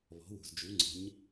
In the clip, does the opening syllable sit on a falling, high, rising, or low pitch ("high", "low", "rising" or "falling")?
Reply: rising